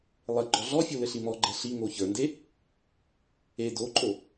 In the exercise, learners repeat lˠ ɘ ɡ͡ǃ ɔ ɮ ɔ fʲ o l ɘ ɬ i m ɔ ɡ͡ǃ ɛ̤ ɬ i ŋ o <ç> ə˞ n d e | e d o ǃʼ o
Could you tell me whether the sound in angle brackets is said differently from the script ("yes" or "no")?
no